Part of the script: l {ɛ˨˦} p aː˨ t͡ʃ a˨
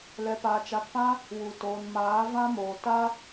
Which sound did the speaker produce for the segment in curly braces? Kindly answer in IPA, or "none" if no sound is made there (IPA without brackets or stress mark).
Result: ɛ˨